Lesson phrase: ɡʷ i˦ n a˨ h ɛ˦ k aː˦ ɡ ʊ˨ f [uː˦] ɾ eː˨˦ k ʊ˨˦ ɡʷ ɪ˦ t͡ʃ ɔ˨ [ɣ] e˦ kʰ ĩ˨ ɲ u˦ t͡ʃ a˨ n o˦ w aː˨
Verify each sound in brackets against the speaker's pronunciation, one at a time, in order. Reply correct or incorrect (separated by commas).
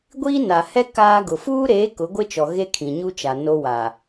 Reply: correct, correct